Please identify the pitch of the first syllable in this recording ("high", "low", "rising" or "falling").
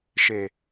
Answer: low